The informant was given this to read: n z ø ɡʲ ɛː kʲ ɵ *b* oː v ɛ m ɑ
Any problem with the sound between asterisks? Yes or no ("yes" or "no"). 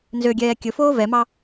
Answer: yes